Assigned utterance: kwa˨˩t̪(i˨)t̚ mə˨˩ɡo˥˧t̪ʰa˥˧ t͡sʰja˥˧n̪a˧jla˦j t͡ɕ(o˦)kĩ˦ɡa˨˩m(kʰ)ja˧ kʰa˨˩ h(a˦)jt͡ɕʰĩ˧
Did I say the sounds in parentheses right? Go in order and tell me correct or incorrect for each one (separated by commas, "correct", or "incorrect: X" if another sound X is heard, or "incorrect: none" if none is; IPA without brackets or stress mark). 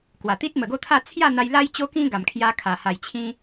incorrect: i˦, correct, correct, incorrect: a˨˩